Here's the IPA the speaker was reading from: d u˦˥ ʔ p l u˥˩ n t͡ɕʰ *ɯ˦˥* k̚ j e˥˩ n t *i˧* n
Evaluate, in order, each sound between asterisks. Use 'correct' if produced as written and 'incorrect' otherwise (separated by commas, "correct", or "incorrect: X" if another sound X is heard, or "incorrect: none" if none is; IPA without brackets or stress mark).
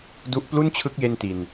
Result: correct, correct